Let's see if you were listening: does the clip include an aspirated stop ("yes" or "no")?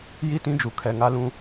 yes